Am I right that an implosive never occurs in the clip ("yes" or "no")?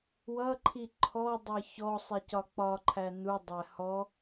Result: yes